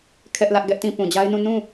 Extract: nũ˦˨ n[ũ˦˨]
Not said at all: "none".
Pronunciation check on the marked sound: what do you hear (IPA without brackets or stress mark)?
ũ˦˨